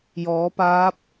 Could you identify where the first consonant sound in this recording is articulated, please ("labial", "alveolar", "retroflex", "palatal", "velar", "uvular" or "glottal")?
palatal